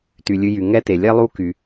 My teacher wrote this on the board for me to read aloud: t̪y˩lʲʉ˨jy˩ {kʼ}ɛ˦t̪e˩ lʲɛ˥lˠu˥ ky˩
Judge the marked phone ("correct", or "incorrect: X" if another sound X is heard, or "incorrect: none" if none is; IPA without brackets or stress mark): incorrect: ŋ